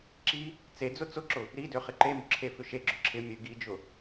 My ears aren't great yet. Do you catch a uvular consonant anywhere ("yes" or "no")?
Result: yes